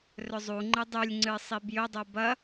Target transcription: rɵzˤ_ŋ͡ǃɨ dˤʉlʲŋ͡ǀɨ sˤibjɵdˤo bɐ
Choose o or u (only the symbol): u